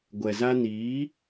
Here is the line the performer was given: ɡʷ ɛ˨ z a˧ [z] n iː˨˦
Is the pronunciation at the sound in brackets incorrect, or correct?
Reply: incorrect